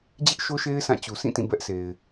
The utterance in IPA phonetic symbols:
d͡ʑɪ˦ʔʃo˦ʃe˦ɪ̯ sã˦˨t͡ɕu˨ sʰĩ˦˨ tĩ˦˨bɛ˦ʔse˨ɪ̯

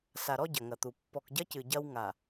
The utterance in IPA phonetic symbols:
sa˨ɾɔ˦ ɟɐ˨ŋɐ˨t̪u˨ pːɔ˨kɟɐ˦ cɨ˨ɟɐ˦w ŋa˨

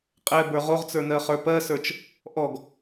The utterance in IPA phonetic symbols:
qʼɛbə˞ ʁoʁt͡sə˞nɜχə˞ pɜsə˞t͡ʃ | ʔɔɡ

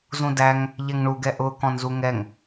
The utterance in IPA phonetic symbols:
zũdæŋ | ʎɛŋɳuɡɛ ʔʊ kɔ̃nzuŋɛŋ

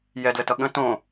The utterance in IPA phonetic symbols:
jɛdlətʌ ɠə̃ tõ

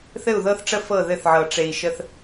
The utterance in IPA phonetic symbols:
θɘ˦˨u̯ðɤ˦θʈ͡ʂə˦ fɤ˦˨ðɘ˦˨θʕɤ˨ ʈ͡ʂe˨i̯ʃə˦θ

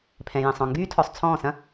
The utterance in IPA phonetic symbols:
pʰɛ̃˨jɛ̃˨sˤ ɔ̃˨ŋɡyː˦ tʰɔ˨sˤt͡sʰɔ̃ː˦˨sɐ̃˦

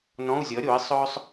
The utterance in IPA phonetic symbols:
nɔ̃˧˥˧u̯zʲʌ˩˥ ɾʲo˩˥i̯ sˤœ˥sˤ

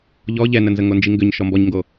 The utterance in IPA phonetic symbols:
ʎɔ ʎɛnənzə ŋond͡ʒiŋɡʏɲ ʃɔmbɔɲŋɡo

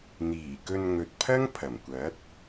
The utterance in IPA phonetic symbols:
n̪iː˨˩kɵ˧n ŋɵ˨t̚pʰɐ˥ŋ pʰɐ˨˩mkʷɐ˨˥t̚

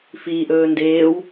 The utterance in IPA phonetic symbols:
fiːʔɵː ndeːw

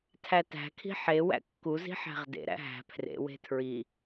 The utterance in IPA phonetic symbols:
tʰætæ̤kʰi̤ ħe wæ̰kːuzi̤ ħæ̤ʁdḛɾæ̰ ɦæ̤ pʰrḛwe̤ tʰɹi

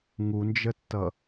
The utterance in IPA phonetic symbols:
ŋund͡ʒətːʌ

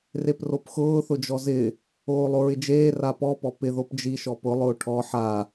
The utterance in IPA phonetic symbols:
repropxʊː θʊd͡ʒɔzɪ | oːlˠoɹɪd͡ʒeː rapɔ pɔpɪ ðopd͡ʒi ʃɔpʊ lˠʊːʈʰɔ ħa

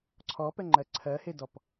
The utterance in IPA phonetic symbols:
ǀʰɔpɛŋ͡ǃɜ ǀʰɜhedɔp

